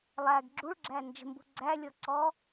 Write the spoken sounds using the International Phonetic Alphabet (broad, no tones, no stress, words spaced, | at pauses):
lˠæɡ ɡ͡ǁuɭɡ͡ǁæ nd͡ʒə̤mbṳ ɡ͡ǀælʲɔǀɔ